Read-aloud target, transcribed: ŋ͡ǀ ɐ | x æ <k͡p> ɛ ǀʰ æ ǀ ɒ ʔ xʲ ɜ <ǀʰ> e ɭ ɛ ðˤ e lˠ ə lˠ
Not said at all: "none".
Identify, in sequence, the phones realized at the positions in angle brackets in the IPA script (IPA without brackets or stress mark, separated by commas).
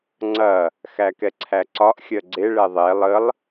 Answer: k, ɡ͡ǀ